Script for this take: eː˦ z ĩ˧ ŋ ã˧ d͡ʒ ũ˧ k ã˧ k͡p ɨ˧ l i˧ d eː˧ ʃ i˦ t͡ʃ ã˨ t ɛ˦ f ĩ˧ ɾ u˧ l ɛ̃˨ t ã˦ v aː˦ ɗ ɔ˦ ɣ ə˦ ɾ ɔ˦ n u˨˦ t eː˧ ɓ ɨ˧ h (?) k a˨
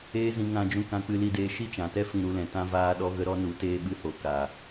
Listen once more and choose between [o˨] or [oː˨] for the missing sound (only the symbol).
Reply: o˨